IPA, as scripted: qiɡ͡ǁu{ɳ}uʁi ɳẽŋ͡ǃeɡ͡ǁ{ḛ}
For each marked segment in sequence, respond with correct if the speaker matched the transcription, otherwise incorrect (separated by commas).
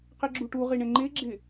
incorrect, incorrect